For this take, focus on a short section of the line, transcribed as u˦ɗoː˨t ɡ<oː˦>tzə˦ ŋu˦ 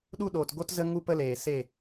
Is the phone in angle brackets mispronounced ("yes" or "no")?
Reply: yes